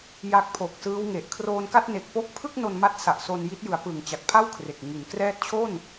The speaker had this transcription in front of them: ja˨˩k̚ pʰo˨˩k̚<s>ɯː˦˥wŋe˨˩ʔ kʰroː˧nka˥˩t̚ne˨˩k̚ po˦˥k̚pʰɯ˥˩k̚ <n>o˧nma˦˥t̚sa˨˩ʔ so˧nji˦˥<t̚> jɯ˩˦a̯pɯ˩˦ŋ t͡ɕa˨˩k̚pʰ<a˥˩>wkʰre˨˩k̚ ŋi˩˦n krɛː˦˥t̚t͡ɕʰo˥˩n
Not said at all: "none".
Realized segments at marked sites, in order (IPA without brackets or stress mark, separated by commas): s, n, t̚, a˥˩